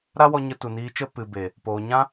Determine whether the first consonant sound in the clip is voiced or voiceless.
voiced